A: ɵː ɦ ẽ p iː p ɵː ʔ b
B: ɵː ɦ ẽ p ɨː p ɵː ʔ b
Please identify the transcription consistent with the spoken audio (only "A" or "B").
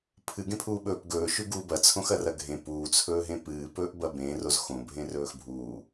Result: B